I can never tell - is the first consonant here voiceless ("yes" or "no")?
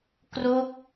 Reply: yes